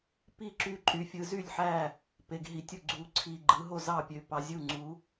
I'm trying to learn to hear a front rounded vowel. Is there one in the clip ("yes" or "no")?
yes